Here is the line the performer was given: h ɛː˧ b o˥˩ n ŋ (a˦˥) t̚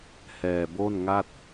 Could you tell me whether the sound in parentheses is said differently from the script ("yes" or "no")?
yes